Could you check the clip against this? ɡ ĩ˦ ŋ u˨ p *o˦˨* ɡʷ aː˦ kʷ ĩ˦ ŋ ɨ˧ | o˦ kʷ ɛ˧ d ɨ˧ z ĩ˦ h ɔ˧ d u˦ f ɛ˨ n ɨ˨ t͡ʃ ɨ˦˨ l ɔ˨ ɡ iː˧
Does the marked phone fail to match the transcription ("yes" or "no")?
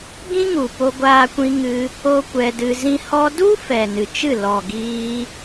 yes